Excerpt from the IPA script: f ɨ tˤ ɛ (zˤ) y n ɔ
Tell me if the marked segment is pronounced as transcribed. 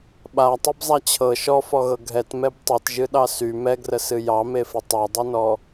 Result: no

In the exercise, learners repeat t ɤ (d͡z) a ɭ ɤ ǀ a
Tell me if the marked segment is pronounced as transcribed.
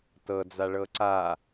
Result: yes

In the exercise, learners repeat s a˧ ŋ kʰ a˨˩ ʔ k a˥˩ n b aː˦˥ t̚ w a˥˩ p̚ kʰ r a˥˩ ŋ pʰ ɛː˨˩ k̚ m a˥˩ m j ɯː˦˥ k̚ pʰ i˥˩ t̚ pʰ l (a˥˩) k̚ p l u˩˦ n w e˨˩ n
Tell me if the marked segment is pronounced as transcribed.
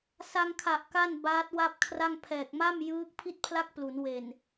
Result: yes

